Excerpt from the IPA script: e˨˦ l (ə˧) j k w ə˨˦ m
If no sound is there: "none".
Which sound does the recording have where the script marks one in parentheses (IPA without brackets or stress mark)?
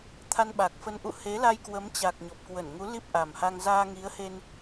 a˧